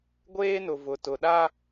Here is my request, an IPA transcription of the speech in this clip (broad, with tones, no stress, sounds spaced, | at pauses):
ɡʷ eː˦ n ʊ˨ v ʊ˨ t ʊ˨ ɗ a˦